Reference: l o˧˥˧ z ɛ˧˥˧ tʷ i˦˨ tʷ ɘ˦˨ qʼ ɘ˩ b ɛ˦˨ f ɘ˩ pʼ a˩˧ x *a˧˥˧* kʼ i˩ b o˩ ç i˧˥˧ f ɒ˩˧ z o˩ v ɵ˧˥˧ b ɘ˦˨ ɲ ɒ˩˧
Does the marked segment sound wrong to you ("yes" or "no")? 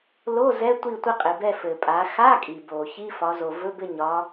no